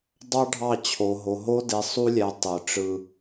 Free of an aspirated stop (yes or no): no